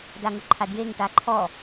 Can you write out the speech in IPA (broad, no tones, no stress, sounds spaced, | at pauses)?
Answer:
d a ŋ ʊ ǃʰ a d j e ŋ ʈ a ǃʰ ɔ